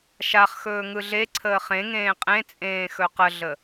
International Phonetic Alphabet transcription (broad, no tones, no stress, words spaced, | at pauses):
ʃaχ xɵːŋɯɮeǀʰəː χẽŋẽː qʼẽt͡sʼẽː xɵqəɮə